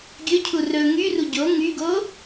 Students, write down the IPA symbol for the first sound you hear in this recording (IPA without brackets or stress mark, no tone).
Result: ɡʲ